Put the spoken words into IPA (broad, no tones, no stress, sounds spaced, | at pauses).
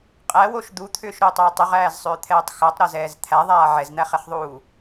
qʼ æ w o ʃ d̪ u t̪ʰ ʏː ʃ ɾ ʏː tˤ ʏː tˤ ʏ ʁ æː z sˤ ʏː t̪ʰ ɛː tˤ x æ tˤ ɾ a z ɛː z t̪ʰ æ ðˤ aː ʕ ɛ z n̪ æ χ ɛ χ ðˤ uː